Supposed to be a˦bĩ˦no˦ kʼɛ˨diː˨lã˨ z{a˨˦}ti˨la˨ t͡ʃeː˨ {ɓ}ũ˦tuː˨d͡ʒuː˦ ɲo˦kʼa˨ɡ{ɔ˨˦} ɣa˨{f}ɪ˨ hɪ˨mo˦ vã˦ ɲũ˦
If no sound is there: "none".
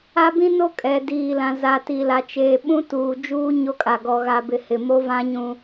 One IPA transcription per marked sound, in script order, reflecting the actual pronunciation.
a˨, ɓ, ɔ˨, b

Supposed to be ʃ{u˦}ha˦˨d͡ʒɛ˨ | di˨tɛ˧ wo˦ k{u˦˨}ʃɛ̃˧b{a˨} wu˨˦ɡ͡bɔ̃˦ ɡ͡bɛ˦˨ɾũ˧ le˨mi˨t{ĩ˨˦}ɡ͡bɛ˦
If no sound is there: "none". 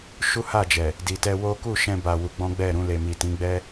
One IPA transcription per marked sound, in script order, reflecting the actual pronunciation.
u˦, u˦˨, a˨, ĩ˨˦

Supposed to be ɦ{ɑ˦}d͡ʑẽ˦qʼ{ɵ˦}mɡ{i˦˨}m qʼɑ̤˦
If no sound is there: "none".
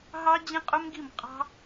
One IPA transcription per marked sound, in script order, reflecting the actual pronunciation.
ɑ˦, ɵ˦, i˦˨

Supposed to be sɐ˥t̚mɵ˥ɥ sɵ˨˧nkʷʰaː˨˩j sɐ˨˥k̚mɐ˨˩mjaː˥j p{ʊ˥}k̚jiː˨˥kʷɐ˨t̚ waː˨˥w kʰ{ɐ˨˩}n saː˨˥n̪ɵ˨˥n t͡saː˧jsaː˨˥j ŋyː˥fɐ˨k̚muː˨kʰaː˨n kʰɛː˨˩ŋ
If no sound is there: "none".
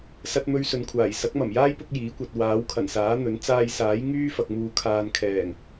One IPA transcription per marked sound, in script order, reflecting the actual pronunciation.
ʊ˥, ɐ˨˩

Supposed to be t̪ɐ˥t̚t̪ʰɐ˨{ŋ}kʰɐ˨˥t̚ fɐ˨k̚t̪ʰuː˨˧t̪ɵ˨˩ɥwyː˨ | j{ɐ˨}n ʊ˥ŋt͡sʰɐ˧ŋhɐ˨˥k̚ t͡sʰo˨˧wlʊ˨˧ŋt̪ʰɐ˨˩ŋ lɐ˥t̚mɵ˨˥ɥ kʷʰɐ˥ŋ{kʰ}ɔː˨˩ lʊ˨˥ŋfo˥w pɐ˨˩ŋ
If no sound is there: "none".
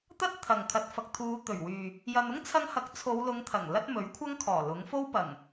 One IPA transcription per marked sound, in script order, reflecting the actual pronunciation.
ŋ, ɐ˧, kʰ

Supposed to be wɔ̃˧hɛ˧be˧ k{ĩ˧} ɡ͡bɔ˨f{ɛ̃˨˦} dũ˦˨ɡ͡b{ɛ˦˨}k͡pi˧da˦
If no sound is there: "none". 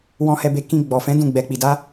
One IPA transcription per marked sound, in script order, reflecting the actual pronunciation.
ĩ˧, ɛ̃˨˦, ɛ˧

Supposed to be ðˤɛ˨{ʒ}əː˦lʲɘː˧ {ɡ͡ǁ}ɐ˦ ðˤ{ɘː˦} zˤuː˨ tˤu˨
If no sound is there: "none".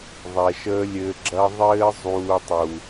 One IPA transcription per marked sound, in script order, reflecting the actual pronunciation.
ʃ, ɡ͡ǁ, ɘː˦

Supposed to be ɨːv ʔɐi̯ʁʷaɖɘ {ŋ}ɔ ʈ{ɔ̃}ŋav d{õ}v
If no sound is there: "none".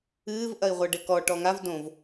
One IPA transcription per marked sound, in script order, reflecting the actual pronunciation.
k, ɔ, õ

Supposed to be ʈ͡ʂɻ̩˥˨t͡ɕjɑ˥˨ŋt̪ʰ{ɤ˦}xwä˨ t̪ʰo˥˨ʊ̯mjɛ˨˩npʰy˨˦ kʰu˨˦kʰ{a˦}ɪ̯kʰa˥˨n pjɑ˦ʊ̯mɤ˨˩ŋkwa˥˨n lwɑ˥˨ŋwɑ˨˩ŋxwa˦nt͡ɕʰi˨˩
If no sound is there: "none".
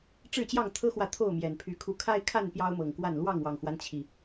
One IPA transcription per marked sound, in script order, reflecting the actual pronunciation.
ɤ˦, a˦

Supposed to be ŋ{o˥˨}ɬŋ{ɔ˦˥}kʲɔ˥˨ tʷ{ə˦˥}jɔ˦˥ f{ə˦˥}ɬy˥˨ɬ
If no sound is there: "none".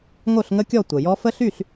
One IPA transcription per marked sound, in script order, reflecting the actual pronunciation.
o˥˨, ə˦˥, ə˨˩, ə˦˥

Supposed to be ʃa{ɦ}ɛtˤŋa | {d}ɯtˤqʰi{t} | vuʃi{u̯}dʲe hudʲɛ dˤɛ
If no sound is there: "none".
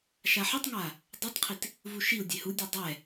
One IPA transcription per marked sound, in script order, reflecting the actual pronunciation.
ħ, dˤ, t, u̯

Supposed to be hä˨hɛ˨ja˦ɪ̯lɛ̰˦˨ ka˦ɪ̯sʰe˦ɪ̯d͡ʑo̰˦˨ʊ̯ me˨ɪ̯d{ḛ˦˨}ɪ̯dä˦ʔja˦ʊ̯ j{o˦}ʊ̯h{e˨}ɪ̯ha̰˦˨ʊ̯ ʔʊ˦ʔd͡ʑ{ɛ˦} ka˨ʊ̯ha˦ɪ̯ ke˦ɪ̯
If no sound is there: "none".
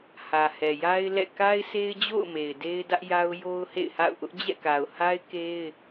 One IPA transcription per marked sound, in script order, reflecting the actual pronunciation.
e˦, o˦, ḛ˦˨, ɛ̰˦˨

